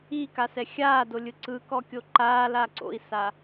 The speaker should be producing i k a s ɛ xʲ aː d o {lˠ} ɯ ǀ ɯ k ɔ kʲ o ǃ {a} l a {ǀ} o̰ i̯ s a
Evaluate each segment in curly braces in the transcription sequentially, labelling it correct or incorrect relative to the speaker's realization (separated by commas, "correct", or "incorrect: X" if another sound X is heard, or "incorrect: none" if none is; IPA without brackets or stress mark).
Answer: incorrect: lʲ, incorrect: aː, correct